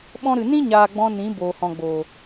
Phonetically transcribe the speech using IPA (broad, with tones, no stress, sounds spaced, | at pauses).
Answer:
ɓ ɔ̃˧ ɾ ɨ˨ n ĩ˦ ɲ aː˨ ɡ͡b ɔ̃˧ n ĩ˨˦ b oː˨ h ɔ̃˨ ɡ͡b oː˨